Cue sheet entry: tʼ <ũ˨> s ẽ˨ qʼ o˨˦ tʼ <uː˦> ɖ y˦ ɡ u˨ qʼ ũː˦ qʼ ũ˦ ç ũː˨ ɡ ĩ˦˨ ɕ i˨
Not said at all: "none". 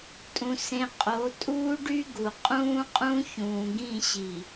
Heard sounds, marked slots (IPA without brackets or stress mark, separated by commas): ũ˨, uː˦